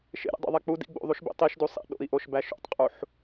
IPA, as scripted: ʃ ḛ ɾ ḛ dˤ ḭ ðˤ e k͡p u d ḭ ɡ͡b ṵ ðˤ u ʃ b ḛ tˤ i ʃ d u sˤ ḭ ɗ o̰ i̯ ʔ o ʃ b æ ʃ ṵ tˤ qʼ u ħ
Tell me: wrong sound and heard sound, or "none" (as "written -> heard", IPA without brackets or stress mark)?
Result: none